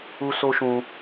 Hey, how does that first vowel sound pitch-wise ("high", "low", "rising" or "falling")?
high